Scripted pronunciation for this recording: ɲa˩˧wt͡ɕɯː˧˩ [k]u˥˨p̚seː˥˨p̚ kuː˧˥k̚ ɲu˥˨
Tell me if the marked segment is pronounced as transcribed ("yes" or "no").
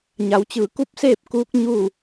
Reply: yes